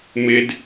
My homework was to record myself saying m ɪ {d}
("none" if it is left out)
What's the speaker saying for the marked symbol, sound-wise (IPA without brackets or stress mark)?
d